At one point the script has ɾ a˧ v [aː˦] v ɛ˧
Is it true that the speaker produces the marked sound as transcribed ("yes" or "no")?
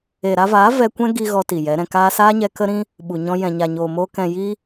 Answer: no